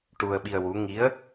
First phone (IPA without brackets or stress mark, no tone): ʈ